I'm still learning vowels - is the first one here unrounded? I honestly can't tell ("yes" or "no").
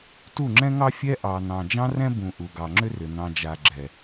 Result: no